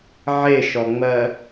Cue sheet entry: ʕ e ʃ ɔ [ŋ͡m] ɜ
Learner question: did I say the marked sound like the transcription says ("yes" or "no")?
yes